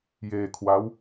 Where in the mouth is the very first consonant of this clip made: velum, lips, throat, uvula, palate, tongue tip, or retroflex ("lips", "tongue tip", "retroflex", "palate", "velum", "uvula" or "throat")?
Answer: palate